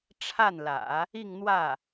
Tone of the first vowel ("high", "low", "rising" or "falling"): falling